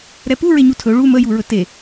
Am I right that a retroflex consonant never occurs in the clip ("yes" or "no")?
no